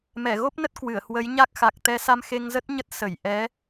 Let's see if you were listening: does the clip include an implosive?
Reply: no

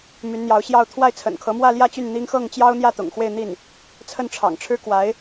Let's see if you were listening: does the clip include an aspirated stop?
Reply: yes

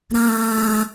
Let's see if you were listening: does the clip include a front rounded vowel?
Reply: no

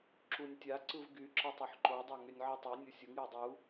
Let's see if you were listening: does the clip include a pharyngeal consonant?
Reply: yes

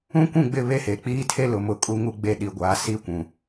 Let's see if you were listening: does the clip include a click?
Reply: no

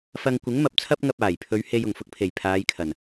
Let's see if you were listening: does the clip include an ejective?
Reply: no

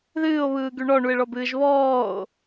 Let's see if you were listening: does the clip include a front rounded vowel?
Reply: yes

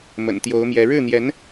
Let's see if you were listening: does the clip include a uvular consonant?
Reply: no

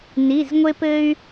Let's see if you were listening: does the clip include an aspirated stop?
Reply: no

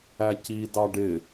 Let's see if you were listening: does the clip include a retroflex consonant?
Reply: yes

